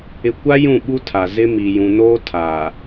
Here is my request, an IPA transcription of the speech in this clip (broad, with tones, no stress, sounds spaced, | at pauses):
ɪ˨ kʷ a˦ j ũ˦˨ ɓ u˦ tʰ a˨ z ɪ˦ m i˨ j ũ˨ n oː˦ tʰ aː˨